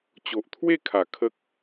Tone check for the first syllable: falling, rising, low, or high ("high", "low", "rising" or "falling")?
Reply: low